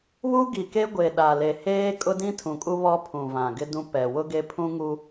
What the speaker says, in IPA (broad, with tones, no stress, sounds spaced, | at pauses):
β u˦ ɡ i˨ k e˦ ɡʷ e˨ ɗ a˨ l e˨ h eː˦ kʼ ʊ˦ d ĩ˦ tʰ ũ˨ kʼ u˦ β ɔ˦ pʰ ũ˨ v ã˨ ɡ ɪ˦ d ũ˦ p ɛ˨ w ʊ˦ ɡ e˦ pʰ ũ˦ ŋ u˦